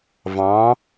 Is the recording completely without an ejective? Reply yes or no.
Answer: yes